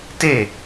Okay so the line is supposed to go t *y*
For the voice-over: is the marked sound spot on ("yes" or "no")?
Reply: no